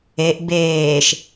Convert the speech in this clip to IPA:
eʔ beːʃ

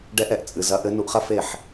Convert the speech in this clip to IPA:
ɖɛ˧ʔɛ˨ʔt͡sʼɨ˨ zɐ˨˦ʔɘ˨˦ nu˧ʔχɐ˦fe˦˨ħ

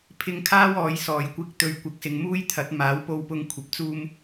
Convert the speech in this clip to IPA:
pʰɪ˧ŋkʰaː˥wɔː˨˧jsɔː˨j kʷɪ˧k̚t̪ɵ˨˧ɥ kʷɪ˨˥k̚sɪ˨ŋmuː˥jt̪ʰɐ˨˥t̚ maː˨˥wpo˧wpʊ˧ŋ kʷʰɐ˨p̚t͡suː˧m

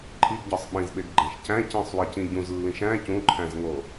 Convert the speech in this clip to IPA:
ǃʰiɡɟɒsˤ ɓĩzɓeɡɡ͡ǃæ̃ʃ cæ̃ cĩsˤwicĩ ɟũzlːĩʃ æ̃ cũǃʰæ̃zŋo

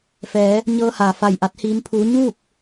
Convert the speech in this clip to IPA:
fɛː˩˧ | ɲɤː˧haː˩ fa˧˩jʔa˧˥t̚hiː˧˥mpʰuː˧˥ ɲuː˥˨k̚

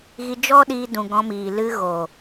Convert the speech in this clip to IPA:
ɣi˧d͡ʒɔ˦ɗiː˧dũ˨ ɡɔ̃˧miː˨ lɨ˧ ɣo˨

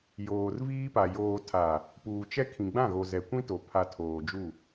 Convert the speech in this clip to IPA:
joː˨rviː˦pa˨ joː˨tʰa˨ | puː˨t͡ʃɛ˦ kʰĩ˨ɡ͡bã˦˨ɣo˨ zɛ˨kʷĩ˦to˨ pʰa˨ tʰoː˨d͡ʒu˦˨

